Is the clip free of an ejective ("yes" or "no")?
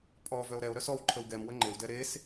no